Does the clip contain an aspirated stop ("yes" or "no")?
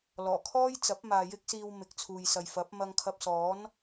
yes